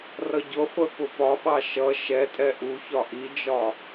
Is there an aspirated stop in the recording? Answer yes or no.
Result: no